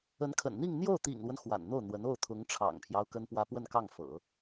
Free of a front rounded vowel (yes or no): yes